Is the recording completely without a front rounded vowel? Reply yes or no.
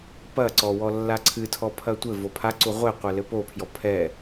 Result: yes